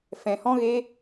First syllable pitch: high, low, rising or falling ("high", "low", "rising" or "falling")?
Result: low